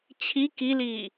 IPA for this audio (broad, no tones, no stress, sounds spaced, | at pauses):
t͡ɕʰ i k i l iː